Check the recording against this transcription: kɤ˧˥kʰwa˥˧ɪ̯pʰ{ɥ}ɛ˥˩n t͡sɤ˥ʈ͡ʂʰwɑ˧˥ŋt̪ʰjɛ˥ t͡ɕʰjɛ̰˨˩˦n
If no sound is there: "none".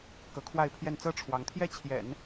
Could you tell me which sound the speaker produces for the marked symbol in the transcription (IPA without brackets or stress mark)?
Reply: j